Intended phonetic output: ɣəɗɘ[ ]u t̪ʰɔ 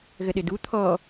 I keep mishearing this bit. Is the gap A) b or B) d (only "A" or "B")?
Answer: B